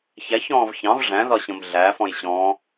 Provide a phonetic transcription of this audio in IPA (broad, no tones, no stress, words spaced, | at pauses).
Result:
çæçɔ̃ːv çɑ̃v ʐæ̃ðɒɕə̃m ɮæfɔ̃j ɕɔ̃